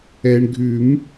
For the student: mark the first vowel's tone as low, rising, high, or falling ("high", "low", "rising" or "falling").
low